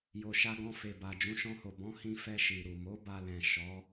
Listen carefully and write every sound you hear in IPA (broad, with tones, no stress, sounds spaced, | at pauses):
j o˨ ʃ a˧ ɡ ɔ̃˧ f e˨ b a˨ d͡ʒ ũ˨˦ ʃ ɔ̃˧ h o˨ b ɔ̃˨˦ h ĩ˧ f ɛ˧ ʃ i˨ ɾ u˨ m o˨˦ b a˧ l ɛ̃˨ ʃ ɔ˨˦